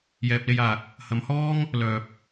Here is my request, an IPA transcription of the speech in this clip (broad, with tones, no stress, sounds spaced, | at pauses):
j ɛː˨ p̚ l e˧ j aː˨ k̚ | h ɐ˨˧ m h ɔː˥ ŋ | l œː˨ p̚